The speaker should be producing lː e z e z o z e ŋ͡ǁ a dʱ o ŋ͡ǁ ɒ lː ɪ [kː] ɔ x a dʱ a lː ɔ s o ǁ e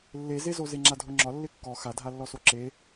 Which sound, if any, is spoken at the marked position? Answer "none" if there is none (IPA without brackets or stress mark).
kː